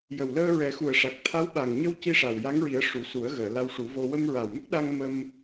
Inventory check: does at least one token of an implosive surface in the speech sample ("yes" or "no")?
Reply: yes